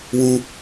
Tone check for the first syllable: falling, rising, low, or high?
high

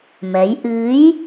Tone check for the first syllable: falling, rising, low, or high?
rising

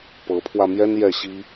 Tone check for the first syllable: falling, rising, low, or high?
rising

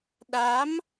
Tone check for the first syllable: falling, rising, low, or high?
rising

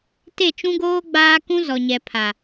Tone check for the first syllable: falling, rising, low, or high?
falling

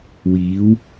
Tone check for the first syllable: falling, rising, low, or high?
rising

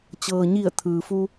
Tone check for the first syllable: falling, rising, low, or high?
low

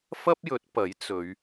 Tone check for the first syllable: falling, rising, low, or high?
high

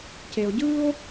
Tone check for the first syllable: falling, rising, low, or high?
low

